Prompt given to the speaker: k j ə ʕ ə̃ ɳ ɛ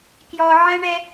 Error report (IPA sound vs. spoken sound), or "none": ə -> ɔ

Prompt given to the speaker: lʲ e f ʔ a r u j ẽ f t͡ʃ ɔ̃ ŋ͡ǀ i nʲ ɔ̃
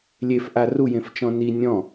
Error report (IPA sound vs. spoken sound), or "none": ŋ͡ǀ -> n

